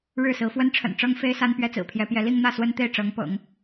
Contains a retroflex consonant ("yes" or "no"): yes